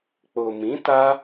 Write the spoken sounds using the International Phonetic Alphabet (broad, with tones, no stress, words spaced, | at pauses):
k͡po˨mĩ˨˦ ta˦